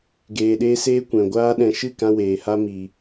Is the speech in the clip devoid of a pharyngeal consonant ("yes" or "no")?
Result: yes